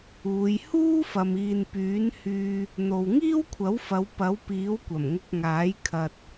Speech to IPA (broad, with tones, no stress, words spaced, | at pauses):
uː˨˧j huː˥fɐ˨m iː˨npyː˨˥nhyː˧ | n̪o˨wŋiː˥wkʷʰɐ˨˥wfɐ˨˧w pɐ˨˥wpiː˨˥wkʷɐ˨˩m ŋʊ˧k̚ŋaː˨˥j kʰɐ˨t̚